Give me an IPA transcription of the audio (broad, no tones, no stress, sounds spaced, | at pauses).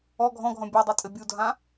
ɔ ɡʱ ɔ̃ ɡʱ ɔ̃ bʲ o dˤ i tʼ ɘ bʲ u dʱ ã